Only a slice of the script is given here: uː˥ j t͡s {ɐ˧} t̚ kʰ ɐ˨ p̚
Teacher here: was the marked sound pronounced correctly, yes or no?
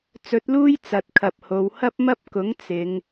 no